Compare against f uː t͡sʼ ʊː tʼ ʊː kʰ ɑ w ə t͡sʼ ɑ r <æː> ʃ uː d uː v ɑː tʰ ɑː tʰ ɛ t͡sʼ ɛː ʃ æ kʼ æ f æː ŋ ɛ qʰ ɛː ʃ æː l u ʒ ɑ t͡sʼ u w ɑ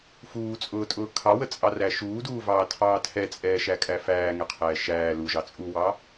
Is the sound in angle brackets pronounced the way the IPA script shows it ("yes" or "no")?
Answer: no